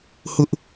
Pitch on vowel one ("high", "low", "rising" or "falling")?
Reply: high